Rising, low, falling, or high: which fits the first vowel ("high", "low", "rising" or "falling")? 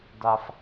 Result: low